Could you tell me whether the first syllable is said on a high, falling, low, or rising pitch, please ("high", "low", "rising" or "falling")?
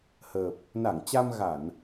low